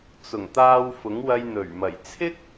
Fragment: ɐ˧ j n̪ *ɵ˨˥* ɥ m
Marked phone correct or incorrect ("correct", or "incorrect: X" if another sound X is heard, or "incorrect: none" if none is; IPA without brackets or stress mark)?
incorrect: ɵ˨˩